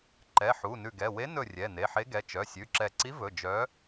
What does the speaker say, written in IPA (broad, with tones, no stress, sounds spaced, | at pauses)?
ǃ ɛ˩˧˩ ħ u˩˧˩ n ʉ˧˩ ɡ ɛ˩˧˩ w e˧˥ n ɵ˧˩ rʲ ɛ˩˧˩ n e˩˧˩ ħ e˧˥ ɡ ɛ˩˧˩ t͡ʃ œ˩˧˩ sʲ ʉ˩˧˩ ǁ ɛ˧˩ ǀ i˧˥ v ɵ˩˧˩ d͡ʒ œ˧˥